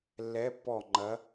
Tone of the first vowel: rising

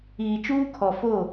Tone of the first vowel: low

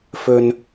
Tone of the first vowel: high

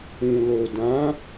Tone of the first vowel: low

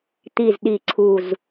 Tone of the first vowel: low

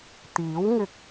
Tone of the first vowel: rising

